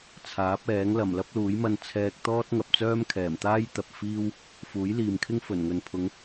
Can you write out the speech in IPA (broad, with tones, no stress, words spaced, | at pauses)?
t͡sʰaː˨˥p̚ɛː˨˥ŋ lɐ˨˩mlɐ˥p̚luː˨˥jmɐ˧n t͡sʰɛː˧k̚t̪ɔː˥t̚ ŋɐ˨p̚t͡sœː˥mkʰɛː˨˩mt̪aː˥j t̪ɐ˨p̚fiː˥w | fuː˨˥jliː˨mkʰɪ˥ŋ fɵ˨˩nŋɵ˨npʰʊ˨˧ŋ